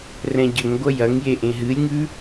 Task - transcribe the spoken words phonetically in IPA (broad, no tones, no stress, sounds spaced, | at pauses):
r ɛ̃ ɟ ə ŋ ɡʷ ɐ j ɐ ŋ j e ʔ ẽ ɦ ɨ lʲ ŋ ʉ